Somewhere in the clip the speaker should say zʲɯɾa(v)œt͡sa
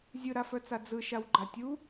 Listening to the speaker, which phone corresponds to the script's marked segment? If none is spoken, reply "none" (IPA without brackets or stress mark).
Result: f